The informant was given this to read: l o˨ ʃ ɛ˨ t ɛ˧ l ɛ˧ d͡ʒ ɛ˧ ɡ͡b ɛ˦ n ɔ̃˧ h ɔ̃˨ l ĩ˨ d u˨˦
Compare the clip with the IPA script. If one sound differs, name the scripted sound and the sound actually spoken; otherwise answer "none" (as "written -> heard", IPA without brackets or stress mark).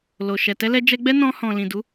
none